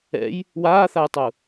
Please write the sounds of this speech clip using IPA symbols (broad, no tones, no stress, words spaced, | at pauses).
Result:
ɛ̰j | waːθajtˤu